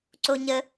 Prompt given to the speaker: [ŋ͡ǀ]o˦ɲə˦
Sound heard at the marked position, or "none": ǀ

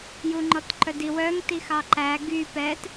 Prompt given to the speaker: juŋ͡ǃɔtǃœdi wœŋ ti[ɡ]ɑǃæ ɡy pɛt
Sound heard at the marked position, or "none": x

